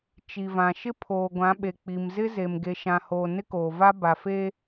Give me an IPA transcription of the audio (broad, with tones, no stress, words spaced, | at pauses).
t͡ʃi˨ vã˨ʃɪ˦ pʰoː˨ɡʷã˨˦ɓe˨ k͡pi˨mzɪ˦ze˨m ɡe˨ʃã˨hoː˨ nɪ˦koː˨va˦ ba˨fe˦